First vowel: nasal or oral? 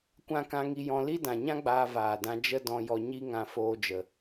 nasal